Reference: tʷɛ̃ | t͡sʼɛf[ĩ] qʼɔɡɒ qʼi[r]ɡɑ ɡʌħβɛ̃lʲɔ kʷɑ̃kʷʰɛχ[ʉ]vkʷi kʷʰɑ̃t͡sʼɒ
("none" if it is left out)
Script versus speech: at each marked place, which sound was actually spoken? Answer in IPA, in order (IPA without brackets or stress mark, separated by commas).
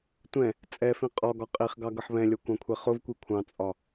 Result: ĩ, χ, ʊ